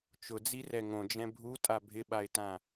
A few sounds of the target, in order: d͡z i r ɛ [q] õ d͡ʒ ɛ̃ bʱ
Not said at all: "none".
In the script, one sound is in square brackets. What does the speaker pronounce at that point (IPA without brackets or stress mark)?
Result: ŋ